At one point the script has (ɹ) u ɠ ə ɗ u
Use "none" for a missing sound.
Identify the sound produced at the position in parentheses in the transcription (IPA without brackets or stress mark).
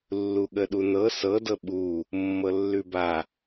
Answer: lː